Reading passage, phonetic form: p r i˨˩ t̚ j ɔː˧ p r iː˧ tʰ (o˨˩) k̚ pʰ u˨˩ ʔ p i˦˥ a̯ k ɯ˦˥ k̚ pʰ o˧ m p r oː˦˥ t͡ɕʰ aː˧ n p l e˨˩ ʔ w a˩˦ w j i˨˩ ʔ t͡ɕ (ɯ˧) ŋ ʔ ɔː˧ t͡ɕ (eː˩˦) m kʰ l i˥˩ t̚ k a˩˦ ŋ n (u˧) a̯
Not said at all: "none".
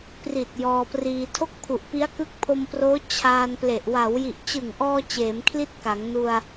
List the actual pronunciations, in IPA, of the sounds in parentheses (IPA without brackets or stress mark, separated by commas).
o˥˩, ɯ˨˩, eː˩˦, u˧